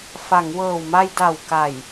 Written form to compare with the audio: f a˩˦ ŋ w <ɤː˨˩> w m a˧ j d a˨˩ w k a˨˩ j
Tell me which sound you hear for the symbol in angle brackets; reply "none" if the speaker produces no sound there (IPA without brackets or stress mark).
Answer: ɤː˨˩